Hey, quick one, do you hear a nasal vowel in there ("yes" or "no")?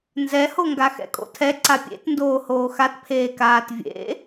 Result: no